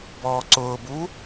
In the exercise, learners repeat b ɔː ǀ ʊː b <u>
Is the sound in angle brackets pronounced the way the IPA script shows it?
yes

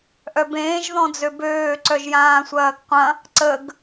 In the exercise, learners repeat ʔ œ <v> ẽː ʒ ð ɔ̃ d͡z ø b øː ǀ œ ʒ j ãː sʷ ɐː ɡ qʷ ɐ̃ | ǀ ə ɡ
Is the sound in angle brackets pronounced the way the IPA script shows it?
no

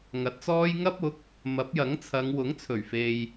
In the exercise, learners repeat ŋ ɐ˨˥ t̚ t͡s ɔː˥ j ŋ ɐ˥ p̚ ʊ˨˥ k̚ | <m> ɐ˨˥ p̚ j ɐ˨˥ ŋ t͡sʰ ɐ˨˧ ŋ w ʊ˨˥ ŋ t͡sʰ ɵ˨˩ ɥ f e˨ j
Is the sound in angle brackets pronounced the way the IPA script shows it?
yes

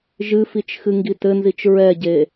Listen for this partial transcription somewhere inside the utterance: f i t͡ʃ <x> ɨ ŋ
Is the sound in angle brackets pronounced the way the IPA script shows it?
yes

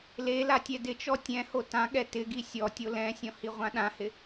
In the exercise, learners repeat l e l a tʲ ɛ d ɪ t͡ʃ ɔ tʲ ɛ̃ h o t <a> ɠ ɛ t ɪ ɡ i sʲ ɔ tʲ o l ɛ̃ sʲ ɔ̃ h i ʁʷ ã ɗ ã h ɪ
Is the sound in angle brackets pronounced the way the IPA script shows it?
no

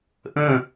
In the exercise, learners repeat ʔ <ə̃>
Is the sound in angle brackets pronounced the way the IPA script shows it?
yes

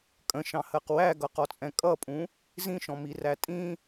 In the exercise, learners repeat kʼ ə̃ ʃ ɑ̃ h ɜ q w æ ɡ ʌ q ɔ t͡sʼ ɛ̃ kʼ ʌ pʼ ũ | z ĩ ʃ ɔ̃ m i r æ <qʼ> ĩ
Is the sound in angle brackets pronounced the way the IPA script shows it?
no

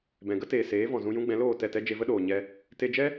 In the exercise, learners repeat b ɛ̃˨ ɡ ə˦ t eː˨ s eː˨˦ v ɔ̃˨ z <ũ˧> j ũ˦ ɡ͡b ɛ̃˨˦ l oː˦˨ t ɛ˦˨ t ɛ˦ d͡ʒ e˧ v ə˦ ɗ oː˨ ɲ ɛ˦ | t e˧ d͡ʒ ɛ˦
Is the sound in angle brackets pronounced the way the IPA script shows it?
yes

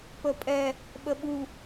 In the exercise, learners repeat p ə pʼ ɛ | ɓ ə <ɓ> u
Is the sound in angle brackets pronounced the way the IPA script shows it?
yes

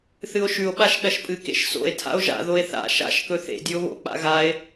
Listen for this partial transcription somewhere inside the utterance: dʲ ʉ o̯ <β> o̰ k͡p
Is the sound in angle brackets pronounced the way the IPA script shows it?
yes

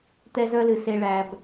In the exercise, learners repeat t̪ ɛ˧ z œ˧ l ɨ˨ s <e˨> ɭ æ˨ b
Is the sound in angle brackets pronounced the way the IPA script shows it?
yes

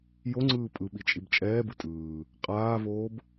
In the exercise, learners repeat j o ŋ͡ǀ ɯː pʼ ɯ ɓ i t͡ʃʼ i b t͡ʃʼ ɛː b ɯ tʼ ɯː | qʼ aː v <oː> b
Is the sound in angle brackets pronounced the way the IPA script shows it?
yes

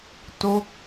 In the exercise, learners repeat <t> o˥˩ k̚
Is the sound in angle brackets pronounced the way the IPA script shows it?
yes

